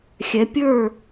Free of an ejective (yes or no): yes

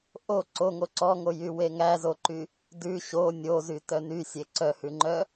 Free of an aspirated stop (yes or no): yes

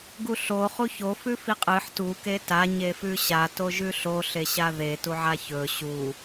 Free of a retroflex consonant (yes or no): yes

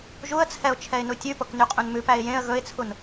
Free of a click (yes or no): yes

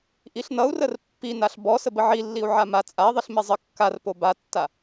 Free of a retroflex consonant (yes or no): yes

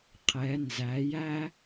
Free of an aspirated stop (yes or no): no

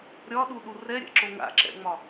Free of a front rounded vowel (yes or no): yes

